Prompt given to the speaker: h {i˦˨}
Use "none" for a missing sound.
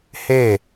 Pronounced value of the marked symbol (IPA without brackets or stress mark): e˦˨